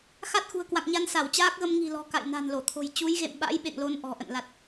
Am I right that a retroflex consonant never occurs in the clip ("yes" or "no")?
yes